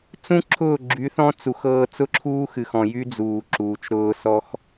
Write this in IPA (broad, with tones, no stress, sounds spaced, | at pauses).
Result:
t͡s ũ˦ ǁʰ ʊː˦˨ ɡ͡ǁ y˨˦ θ ɔ̃˦ t͡s u˨ x ɤː˧ t͡s ʊ˦ ǁʰ uː˦ x ɨ˨ x ɔ̃˨ j y˦ d͡z uː˨ ǁ uː˨ t͡ʃ ɾ ʊː˧ s ɔ˦ x